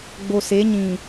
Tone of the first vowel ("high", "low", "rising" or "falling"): low